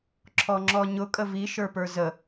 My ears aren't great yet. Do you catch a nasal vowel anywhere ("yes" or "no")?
no